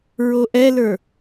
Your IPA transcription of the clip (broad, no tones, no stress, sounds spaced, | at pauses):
ɹ o ʔ ɛ l ə˞